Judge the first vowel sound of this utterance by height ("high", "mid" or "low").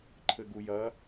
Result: mid